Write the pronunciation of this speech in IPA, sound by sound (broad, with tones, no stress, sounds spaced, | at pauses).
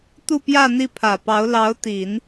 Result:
t̪ u˥˧ p j ä˥˧ n̪ i˥˩ pʰ ä˨˩ p ɑ˧˥ ʊ̯ l ɑ˧˥ ʊ̯ t̪ i˨˩˦ n